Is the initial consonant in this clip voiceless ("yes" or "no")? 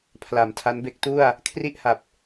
yes